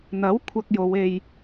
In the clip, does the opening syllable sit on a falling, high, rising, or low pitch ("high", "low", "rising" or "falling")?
rising